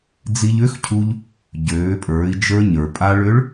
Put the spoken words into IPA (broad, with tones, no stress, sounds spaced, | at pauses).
d͡z i˧ ʎ ʏ˧˥ x cʰ u˧ ʎ | ɟ øː˩˧ pʼ ə˞˩˧ i̯ d͡ʒ ə˞˧ ɲ ə˞˩ pʼ a˧ ɭ ʏ˧˥ ɭ